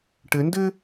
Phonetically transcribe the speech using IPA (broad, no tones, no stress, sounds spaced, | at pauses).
ʈ ɘ n d ɘ